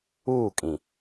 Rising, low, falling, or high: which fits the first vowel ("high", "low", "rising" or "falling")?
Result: falling